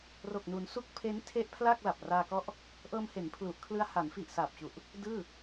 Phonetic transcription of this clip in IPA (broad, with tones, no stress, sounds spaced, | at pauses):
r o˨˩ k̚ n u˩˦ n s u˦˥ k̚ pʰ e˦˥ n tʰ e˦˥ ʔ pʰ l aː˥˩ k̚ l a˨˩ p̚ r aː˧ k ɔ˦˥ ʔ | ʔ ɤː˧ m h e˩˦ n pʰ l u˨˩ ʔ kʰ l ɯ˧ a̯ h a˩˦ n f i˨˩ ʔ s aː˨˩ p̚ t͡ɕ u˨˩ ʔ | d ɯː˥˩